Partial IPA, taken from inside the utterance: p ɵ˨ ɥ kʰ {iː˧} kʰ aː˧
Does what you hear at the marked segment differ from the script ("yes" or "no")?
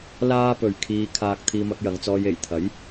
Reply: no